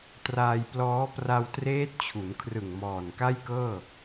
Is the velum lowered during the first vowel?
no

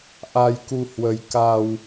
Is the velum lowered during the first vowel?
no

